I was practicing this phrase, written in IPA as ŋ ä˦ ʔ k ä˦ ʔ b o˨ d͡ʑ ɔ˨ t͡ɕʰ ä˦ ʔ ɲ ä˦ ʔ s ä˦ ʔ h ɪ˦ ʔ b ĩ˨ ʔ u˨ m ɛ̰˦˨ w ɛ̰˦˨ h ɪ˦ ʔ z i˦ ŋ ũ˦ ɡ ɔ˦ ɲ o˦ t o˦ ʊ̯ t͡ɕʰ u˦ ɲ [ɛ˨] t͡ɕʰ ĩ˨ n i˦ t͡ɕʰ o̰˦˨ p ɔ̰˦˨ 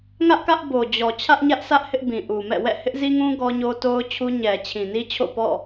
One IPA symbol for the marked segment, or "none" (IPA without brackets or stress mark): ɛ˨